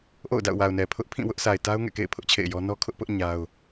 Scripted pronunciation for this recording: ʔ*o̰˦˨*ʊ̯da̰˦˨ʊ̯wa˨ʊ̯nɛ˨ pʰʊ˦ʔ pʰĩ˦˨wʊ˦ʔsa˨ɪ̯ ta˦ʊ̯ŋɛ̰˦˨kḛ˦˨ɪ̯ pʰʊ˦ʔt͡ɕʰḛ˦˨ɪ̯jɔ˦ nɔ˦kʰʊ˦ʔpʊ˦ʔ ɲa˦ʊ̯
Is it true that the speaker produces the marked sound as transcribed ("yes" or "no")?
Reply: yes